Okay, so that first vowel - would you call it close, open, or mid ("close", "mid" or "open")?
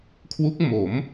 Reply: close